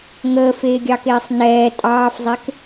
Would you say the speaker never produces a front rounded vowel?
yes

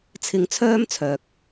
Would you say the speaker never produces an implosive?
yes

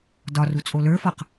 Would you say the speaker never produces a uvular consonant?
no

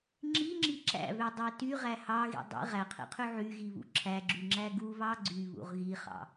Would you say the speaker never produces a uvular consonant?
no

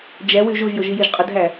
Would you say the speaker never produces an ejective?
no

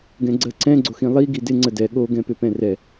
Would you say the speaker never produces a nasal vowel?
no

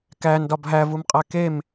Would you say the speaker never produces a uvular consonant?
no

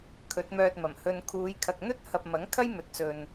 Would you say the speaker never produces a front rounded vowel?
no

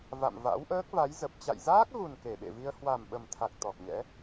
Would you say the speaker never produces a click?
yes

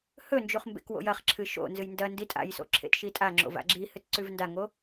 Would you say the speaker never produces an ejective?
no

